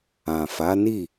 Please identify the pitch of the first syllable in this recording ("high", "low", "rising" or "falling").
low